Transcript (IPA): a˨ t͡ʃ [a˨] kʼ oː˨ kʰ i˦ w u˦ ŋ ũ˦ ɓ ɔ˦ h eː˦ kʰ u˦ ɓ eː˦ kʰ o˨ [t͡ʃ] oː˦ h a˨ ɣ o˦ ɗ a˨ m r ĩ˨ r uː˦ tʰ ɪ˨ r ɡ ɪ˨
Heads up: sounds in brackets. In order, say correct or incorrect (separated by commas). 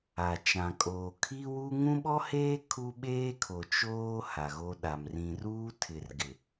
incorrect, correct